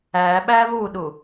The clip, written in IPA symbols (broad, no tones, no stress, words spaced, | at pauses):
æ ɓævuɗu